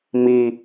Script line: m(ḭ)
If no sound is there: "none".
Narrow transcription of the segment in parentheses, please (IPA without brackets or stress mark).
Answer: i